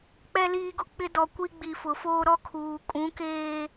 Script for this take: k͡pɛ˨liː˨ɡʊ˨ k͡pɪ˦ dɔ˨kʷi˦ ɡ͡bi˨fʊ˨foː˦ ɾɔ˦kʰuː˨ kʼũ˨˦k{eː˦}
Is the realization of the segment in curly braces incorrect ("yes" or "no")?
no